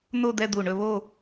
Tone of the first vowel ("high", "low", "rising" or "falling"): falling